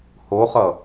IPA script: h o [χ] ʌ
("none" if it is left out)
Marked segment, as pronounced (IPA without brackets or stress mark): χ